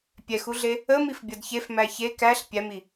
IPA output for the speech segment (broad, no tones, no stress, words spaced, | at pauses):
pʲɛxuɮe | əmifbʲʌd çef mæçe kæɬ pʲæmi